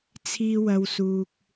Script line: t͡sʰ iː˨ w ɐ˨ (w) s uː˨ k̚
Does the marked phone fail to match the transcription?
no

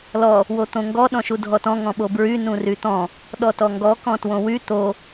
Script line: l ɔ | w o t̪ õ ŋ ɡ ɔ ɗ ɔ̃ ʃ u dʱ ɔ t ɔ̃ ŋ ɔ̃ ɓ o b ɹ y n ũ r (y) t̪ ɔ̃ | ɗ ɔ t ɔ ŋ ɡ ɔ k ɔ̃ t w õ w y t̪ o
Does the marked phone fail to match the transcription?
no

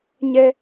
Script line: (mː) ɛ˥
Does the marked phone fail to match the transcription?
yes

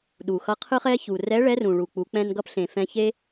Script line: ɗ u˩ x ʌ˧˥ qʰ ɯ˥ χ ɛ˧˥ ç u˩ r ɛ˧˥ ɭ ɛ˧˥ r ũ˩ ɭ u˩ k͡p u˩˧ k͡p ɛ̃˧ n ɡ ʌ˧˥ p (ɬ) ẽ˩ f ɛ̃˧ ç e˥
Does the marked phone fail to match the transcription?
no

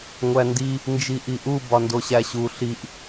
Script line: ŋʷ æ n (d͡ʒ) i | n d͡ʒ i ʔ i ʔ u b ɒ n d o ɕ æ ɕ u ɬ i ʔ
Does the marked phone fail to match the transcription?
yes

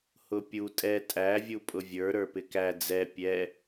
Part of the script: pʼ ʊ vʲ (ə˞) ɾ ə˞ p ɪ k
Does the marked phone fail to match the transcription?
no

